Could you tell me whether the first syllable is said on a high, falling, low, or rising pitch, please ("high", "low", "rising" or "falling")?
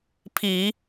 low